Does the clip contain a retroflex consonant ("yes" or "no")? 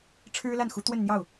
yes